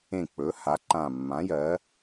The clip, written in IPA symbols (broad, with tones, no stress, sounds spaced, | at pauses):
ẽ˦˨ k͡p ɵ˨˥ h a˨˥ ǃ ã˦˨ mː ã˨˥ j ɜ˨˥